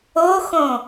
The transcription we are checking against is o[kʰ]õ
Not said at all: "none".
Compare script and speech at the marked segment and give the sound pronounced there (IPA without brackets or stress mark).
x